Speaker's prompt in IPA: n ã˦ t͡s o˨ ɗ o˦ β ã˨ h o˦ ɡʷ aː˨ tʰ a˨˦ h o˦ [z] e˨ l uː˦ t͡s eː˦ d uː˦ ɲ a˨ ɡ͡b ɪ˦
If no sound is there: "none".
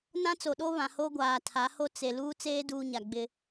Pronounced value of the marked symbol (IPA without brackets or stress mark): t͡s